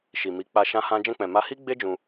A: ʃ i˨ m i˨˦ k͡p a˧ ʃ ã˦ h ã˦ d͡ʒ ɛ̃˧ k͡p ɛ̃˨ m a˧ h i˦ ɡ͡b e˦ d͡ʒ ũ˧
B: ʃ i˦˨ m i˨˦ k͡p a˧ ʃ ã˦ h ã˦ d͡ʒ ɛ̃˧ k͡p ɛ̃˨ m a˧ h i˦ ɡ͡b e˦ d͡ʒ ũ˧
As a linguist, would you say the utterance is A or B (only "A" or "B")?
A